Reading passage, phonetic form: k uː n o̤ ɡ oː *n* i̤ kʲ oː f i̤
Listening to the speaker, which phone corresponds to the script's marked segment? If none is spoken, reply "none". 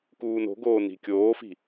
n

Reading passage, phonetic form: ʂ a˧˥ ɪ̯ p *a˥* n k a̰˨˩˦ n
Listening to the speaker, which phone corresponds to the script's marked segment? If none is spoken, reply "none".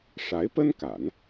ə˥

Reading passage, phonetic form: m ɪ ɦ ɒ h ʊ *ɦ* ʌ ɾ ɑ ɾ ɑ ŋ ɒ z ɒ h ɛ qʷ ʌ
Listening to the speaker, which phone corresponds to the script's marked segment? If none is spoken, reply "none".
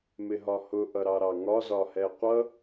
ʔ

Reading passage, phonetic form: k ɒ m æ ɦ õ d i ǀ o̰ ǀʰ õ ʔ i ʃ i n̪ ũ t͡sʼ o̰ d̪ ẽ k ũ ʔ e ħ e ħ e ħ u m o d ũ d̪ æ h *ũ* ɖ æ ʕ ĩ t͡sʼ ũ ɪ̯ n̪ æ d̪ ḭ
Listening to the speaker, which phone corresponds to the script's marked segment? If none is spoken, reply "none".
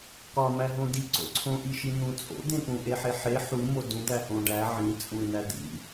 õ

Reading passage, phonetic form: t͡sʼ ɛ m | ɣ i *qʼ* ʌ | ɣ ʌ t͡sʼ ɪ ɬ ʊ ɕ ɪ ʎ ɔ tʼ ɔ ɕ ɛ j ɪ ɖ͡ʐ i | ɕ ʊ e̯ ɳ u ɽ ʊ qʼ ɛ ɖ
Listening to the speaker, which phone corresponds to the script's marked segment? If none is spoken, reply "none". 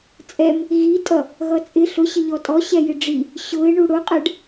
tʼ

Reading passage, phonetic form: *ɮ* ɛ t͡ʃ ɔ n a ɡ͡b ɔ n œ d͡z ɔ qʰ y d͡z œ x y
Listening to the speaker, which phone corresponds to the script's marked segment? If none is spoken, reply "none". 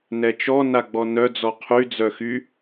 n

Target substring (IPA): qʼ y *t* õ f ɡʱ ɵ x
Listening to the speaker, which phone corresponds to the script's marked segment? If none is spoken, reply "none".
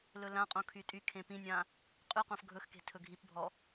q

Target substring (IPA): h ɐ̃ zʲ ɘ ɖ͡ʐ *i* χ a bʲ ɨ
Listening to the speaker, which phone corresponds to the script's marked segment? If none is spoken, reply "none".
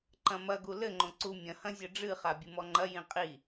ɨ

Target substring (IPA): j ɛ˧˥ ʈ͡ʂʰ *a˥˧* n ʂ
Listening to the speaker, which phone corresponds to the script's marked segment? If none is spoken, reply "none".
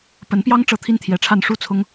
a˥˧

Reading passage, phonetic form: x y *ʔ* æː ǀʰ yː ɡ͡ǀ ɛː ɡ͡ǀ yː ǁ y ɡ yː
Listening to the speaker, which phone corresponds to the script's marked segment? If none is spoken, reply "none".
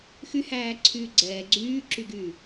h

